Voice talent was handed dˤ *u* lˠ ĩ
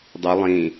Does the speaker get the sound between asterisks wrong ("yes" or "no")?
no